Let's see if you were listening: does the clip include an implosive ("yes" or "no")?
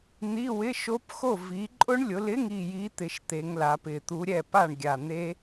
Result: no